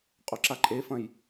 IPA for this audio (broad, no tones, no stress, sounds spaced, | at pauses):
qʼ o ǁ a ǃʼ e f ɐ̃ j